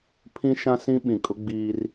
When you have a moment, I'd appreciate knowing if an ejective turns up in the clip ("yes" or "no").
yes